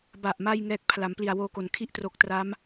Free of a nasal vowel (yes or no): yes